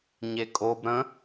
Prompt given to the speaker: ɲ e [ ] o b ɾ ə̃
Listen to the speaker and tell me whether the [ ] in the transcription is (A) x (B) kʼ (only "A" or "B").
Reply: B